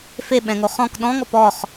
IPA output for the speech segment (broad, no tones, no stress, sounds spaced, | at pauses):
f e ɓ ɛ̃ ŋ o χ ɔ̃ k ɗ ɔ̃ ŋ ɔ p ɔ χ